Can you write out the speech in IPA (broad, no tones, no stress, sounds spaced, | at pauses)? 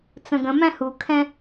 t͡s ə̃ ɡ ə̃ m æ̃ h u kʰ ɛ̃